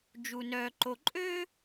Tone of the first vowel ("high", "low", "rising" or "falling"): low